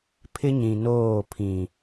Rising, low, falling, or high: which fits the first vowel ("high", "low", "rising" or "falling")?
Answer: high